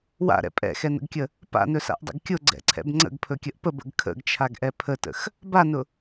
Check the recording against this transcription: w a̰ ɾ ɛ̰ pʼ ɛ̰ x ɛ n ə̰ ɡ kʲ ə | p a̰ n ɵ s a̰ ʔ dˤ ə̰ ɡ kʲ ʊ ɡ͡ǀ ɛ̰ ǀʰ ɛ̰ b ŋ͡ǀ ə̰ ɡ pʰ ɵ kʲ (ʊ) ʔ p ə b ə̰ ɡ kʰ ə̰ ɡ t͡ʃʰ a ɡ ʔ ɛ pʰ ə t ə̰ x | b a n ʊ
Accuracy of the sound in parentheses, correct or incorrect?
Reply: incorrect